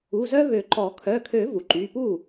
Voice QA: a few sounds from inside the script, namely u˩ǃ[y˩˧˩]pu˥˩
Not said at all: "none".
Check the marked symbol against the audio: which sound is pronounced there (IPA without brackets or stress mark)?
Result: y˩˧˩